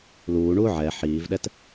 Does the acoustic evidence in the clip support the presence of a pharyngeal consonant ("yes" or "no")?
yes